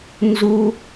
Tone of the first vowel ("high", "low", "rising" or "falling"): high